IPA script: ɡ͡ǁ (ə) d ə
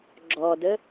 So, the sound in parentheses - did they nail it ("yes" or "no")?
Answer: no